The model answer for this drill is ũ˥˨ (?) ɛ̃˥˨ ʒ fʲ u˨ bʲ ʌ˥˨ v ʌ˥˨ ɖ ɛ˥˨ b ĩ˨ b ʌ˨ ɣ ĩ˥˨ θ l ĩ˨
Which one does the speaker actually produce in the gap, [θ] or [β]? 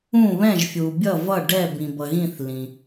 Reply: β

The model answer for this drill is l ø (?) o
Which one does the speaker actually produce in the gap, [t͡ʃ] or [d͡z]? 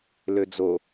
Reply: d͡z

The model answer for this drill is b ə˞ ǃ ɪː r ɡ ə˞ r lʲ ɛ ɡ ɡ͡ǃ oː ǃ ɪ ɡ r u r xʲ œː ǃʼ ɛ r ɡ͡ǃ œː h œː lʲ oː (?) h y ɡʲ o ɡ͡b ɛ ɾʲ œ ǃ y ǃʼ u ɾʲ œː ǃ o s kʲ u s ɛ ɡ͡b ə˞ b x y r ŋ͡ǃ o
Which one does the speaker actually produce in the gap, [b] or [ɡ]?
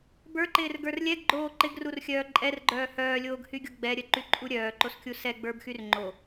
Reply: ɡ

